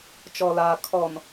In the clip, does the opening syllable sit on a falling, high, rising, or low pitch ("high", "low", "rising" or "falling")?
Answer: low